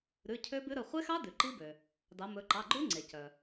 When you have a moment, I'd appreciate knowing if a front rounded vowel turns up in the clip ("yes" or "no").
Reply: yes